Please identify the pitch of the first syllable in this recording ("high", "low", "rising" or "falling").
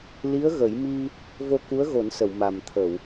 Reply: rising